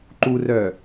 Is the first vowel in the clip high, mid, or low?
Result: high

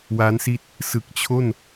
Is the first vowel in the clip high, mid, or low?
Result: low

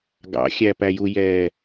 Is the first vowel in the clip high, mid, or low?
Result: low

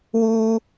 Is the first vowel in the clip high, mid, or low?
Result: high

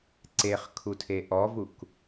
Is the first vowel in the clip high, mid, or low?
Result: mid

